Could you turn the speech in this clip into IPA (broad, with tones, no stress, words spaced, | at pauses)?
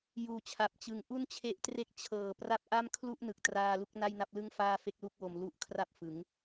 juː˩˦t͡ɕʰa˨˩p̚t͡ɕɯ˨˩ŋ ʔu˥˩nt͡ɕʰe˦˥ʔtre˥˩k̚ t͡ɕʰɤː˨˩ pra˦˥p̚ʔa˥˩m kʰlu˥˩ʔnɯ˨˩k̚traː˧ lu˥˩k̚na˥˩jna˥˩p̚lɯ˥˩ŋ faː˥˩fe˥˩k̚lu˥˩k̚wo˧m lu˦˥ʔ kʰra˥˩p̚fɯ˩˦ŋ